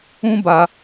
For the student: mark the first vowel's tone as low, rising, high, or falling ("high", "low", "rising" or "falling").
high